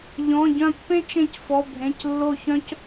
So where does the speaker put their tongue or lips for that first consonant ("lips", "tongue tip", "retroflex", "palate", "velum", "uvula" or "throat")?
palate